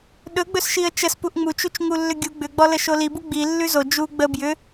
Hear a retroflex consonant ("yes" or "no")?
no